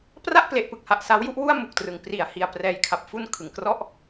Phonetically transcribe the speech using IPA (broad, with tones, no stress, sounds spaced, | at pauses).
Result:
p r a˥˩ ʔ p l e˨˩ ʔ p ɯ˨˩ k̚ h a˨˩ ʔ s a˦˥ w j u˦˥ ʔ w u˥˩ a̯ m u˨˩ k̚ t r ɯ˩˦ ŋ p r i˨˩ a̯ h i˧ a̯ p r ɛː˧ j kʰ a˨˩ p̚ f u˧ n kʰ ɯ˨˩ ŋ k r ɔ˥˩ ʔ